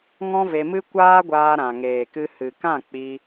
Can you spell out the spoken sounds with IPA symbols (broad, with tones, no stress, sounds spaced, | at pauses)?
ŋ ɔ̃˦ v e˧ m ɨ˦ kʷ aː˦ ɡʷ aː˧ ɾ ã˨ ŋ eː˨ k ɨ˧ h ɨ˨ k ã˦˨ k͡p i˧